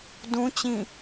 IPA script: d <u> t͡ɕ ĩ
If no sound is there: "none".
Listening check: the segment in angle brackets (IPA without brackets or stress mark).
ũ